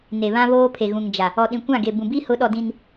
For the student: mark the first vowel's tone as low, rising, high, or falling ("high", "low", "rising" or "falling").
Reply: low